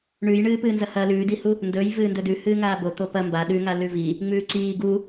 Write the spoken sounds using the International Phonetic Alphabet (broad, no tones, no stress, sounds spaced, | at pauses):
ɳ ʉ j ɳ ɨː p ɨː n z ɐ h ɐ l ʉː d i h u | n d ɵ j v ɨː n d ɵ d ʉ h ɨː ŋ aː b o t̪ o p ɐ m b a ɗ ʉ ŋ a l ʉ v i | ŋ͡m ʉː ǀ iː ɡ u